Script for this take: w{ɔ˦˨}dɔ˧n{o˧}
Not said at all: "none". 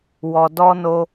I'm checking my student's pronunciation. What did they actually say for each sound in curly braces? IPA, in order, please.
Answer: ɔ˨, o˧

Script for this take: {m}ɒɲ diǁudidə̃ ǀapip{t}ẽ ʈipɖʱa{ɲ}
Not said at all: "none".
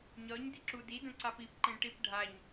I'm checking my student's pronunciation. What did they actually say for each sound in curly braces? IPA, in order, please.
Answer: ɲ, ǃ, ɲ

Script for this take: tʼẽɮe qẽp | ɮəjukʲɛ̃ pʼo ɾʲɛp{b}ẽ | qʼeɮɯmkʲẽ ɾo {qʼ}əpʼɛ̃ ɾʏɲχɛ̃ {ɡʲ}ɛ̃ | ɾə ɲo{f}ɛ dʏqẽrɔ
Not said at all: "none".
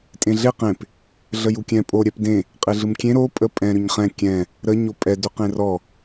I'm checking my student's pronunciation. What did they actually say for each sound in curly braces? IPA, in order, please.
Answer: d, pʼ, kʲ, pʼ

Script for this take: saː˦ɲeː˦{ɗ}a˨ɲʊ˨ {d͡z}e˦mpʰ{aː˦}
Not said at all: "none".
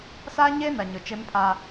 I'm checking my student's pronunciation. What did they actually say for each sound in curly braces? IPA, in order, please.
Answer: n, t͡ʃ, aː˦

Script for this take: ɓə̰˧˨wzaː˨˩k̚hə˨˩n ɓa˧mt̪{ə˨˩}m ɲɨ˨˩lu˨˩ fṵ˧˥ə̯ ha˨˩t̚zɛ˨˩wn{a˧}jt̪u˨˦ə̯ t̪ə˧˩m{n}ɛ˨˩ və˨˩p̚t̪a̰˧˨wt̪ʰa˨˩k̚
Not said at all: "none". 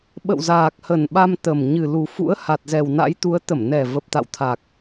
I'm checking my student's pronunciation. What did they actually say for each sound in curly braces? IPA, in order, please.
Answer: ə˨˩, a̰˧˥, n

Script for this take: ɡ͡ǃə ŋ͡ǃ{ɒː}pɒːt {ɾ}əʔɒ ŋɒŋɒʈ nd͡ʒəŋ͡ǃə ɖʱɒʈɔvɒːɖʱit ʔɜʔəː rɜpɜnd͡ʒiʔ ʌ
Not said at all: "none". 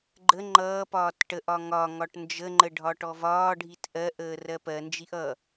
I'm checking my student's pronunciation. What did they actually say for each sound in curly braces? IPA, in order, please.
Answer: ʌː, ʈ

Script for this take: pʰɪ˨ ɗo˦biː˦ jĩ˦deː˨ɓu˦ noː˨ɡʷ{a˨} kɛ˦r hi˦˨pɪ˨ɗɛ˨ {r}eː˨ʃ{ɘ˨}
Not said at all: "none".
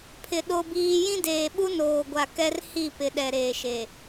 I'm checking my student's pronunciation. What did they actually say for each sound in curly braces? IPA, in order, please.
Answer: a˨, ɾ, e˨

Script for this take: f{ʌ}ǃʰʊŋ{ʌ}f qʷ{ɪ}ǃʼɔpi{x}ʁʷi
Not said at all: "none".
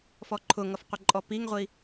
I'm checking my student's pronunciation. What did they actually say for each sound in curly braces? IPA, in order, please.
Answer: ɔ, ʌ, ɪ, ŋ

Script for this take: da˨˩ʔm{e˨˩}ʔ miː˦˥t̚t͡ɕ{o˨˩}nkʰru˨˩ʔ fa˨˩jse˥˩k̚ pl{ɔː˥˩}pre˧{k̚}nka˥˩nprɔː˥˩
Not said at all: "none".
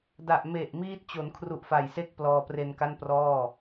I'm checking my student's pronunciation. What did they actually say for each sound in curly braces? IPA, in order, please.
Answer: e˨˩, o˩˦, ɔː˧, none

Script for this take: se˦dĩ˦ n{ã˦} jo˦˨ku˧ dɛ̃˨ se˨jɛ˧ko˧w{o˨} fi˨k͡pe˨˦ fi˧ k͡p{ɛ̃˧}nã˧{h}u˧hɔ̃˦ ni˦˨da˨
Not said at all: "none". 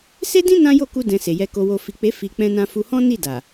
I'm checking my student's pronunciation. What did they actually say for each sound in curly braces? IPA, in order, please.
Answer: ã˦, o˧, ɛ̃˧, f

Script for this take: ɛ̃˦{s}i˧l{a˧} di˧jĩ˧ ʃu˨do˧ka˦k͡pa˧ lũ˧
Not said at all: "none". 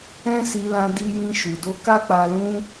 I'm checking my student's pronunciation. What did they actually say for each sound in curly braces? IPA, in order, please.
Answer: s, ã˧

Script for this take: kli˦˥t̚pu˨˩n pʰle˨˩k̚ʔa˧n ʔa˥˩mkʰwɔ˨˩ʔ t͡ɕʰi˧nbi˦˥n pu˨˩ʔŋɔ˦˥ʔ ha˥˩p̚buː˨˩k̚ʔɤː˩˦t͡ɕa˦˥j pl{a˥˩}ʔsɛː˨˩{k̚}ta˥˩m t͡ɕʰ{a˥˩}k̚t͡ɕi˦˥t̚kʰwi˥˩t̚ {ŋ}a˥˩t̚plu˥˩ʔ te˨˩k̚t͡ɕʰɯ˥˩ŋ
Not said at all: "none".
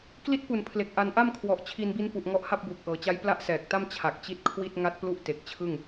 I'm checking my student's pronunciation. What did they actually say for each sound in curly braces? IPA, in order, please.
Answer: a˥˩, k̚, a˨˩, ŋ

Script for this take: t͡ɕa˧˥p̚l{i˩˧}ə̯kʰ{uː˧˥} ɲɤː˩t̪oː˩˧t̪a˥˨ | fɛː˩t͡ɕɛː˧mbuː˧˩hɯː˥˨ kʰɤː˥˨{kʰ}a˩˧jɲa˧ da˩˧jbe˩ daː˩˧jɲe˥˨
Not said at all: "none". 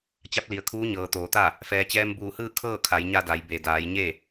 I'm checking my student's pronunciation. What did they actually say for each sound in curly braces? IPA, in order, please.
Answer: i˩, uː˧˥, kʰ

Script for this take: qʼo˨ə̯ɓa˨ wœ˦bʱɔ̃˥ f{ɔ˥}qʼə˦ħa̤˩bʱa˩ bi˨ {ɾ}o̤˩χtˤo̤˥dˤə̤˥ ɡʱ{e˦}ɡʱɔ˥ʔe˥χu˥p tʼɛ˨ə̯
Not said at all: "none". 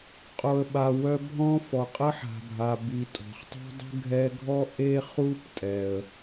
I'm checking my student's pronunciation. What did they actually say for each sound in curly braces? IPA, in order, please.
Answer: ɔ˩, tʼ, ɛ˦

